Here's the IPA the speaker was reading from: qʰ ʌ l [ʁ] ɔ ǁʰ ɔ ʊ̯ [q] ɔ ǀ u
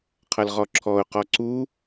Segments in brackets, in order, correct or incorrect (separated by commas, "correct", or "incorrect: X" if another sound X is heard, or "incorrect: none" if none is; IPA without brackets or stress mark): correct, correct